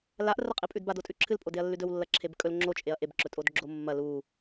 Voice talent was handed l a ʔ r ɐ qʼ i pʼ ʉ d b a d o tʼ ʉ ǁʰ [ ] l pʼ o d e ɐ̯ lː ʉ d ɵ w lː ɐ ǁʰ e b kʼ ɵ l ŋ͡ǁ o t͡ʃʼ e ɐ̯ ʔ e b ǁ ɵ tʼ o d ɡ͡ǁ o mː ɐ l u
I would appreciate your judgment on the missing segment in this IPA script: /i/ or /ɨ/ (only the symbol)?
ɨ